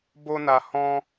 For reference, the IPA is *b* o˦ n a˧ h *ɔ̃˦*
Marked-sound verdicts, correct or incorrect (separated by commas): correct, correct